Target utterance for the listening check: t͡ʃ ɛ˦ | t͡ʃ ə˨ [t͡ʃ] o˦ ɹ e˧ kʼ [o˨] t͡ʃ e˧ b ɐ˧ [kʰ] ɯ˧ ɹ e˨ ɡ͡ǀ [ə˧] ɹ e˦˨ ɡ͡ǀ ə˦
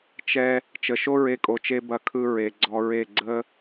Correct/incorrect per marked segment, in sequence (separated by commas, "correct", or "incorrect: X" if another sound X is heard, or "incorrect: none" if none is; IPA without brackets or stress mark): incorrect: ʃ, correct, correct, incorrect: ɔ˧